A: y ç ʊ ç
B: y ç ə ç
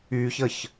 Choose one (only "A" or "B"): B